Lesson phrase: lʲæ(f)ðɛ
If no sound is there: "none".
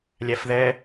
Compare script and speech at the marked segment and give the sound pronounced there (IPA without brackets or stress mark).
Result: f